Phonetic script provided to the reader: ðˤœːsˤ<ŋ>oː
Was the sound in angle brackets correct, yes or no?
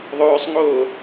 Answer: yes